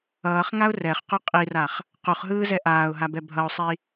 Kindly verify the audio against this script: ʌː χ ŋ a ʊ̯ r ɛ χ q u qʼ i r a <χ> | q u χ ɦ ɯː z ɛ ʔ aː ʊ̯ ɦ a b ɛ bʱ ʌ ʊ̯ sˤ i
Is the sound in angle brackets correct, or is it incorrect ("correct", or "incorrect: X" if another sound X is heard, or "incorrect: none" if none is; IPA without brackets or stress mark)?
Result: correct